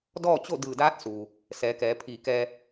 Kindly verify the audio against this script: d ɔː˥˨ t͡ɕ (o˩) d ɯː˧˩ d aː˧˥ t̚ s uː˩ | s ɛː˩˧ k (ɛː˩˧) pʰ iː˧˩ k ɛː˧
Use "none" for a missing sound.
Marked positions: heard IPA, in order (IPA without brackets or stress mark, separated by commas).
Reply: o˥˨, ɛː˩˧